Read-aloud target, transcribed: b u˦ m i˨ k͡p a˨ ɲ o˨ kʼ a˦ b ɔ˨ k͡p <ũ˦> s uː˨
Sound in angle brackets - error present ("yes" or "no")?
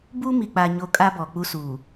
yes